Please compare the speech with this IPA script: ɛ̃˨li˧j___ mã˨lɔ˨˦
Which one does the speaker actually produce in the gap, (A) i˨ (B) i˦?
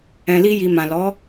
A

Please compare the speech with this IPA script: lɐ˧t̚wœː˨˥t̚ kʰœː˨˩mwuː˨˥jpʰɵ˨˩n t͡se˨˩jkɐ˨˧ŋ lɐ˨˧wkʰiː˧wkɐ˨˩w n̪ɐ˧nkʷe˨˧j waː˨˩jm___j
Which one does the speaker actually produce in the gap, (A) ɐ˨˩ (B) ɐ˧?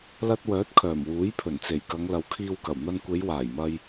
B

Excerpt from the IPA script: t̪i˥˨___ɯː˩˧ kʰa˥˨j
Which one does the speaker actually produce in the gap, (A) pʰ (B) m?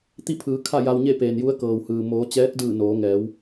A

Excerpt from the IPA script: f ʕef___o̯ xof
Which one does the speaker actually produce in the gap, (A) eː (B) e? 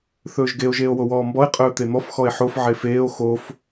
A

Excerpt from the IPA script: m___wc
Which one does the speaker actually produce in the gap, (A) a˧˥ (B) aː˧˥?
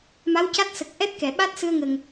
A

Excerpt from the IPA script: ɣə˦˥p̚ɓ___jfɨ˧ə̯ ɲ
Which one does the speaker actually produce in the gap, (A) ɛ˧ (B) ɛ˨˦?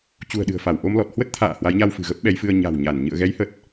B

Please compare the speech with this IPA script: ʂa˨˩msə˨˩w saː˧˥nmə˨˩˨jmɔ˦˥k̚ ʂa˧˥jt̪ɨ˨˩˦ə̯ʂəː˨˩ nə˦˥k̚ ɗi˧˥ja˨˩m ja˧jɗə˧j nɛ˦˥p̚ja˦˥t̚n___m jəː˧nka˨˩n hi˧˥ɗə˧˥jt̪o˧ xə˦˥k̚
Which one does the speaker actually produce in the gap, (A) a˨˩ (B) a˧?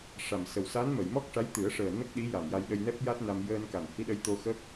B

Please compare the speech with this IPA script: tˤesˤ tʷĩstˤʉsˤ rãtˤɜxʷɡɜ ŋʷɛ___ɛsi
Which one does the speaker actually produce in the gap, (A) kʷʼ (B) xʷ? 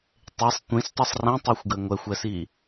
B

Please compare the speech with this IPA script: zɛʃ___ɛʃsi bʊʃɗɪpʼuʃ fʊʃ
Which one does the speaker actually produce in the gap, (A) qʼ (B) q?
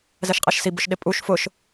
A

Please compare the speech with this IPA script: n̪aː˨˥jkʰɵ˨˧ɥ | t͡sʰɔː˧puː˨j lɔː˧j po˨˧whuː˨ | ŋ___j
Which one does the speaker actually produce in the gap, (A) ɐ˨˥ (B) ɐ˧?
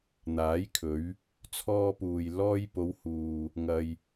B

